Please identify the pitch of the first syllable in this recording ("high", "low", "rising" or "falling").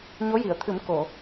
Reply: rising